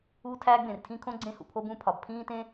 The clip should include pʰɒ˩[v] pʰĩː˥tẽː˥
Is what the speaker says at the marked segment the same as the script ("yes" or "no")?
no